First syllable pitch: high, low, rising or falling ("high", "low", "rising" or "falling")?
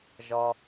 low